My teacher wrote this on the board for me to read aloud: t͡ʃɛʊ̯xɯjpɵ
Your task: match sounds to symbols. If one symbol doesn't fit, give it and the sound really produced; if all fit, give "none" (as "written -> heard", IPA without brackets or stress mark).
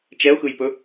none